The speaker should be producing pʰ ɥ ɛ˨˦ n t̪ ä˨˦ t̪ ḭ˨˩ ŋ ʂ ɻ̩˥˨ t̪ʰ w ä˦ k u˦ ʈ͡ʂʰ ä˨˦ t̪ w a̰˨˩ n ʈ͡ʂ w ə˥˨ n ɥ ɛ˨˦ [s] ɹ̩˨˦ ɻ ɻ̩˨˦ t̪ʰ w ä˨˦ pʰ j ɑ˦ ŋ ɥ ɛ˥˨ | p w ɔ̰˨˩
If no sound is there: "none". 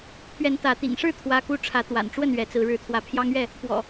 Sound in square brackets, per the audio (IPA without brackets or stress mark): t͡s